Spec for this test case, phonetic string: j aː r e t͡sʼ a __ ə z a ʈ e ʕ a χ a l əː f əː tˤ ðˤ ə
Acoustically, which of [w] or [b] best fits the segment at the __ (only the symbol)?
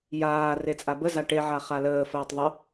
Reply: b